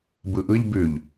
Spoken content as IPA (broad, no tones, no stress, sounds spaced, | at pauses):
b ɯ ʔ ɯ ʎ b ʉ ʎ